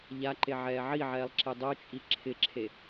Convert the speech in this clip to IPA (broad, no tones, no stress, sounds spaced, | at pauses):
ʎ a ǃ e ʕ ɛː ʕ i ʕ ɛː lˠ ǁ e dˤ o t͡ʃʼ i ǁʰ ɪ ǁʰ e